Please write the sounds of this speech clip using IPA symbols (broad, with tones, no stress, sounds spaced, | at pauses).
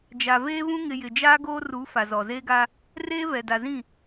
d͡ʒ a˨ v eː˦ v ũ˦ ŋ ɪ˨ j ɪ˨ d͡ʒ aː˦ ɡ oː˦ r u˨˦ f a˨ z ɔ˨ z eː˦ ɡ a˦ | r eː˦ v ɛ˨ d a˨ z ĩ˦˨